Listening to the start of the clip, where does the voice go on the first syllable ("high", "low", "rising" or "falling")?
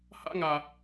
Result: high